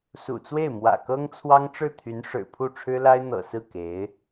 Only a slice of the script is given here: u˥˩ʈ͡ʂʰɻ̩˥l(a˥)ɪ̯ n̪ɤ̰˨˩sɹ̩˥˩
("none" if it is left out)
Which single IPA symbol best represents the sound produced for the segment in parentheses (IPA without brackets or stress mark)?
a˥